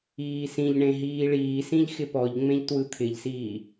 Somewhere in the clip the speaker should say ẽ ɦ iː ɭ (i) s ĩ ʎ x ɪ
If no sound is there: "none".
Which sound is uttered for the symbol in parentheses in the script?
iː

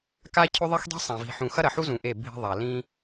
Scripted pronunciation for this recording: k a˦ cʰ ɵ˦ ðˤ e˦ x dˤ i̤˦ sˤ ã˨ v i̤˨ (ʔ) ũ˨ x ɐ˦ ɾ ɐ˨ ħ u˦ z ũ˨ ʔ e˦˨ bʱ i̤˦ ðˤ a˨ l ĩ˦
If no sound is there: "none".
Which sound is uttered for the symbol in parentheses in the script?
ħ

